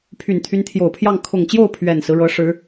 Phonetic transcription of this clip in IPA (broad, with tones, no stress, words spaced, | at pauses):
pʰy˨˩nt̪ʰy˧˥nt̪ʰjo˨˩ʊ̯pʰjɑ˥˩ŋ kʰʊ˨˩ŋt͡ɕjo˥˩ʊ̯ pʰɥɛ˨˩nsɹ̩˦ɻɤ˧˥ ʂɻ̩˧˥